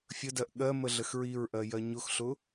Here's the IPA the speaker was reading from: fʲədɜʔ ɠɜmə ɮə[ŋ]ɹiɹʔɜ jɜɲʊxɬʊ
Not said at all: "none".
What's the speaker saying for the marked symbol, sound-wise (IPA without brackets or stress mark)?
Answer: x